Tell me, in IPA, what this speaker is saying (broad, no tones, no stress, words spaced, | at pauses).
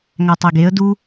ŋætˤeɡeə̯ du